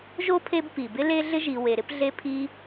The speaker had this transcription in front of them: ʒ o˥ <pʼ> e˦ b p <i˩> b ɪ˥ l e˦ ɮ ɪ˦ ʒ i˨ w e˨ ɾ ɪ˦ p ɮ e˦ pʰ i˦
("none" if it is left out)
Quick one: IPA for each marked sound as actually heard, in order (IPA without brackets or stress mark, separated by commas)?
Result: pʰ, i˩